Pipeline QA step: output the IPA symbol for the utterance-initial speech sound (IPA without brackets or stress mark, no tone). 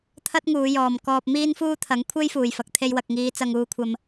t̪ʰ